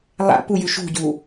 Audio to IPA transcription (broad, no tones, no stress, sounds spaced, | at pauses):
lˠ a̰ p u j ʉ ʃ ṳ ɟ u